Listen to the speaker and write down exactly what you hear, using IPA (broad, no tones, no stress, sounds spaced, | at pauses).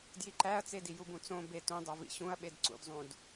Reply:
d j i ǃ æ ɐ̯ t͡s e d i j u b ũ t͡s õ b e t ũ dˤ o v ḭ ɕ ũ ɐ̯ ɓ e d ǀ ṵ d zˤ ũ d